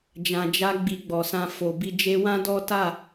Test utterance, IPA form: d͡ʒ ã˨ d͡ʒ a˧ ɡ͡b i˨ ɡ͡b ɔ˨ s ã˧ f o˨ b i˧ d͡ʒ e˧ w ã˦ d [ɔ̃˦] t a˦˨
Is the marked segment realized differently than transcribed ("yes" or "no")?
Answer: yes